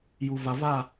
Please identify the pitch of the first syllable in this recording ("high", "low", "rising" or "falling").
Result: low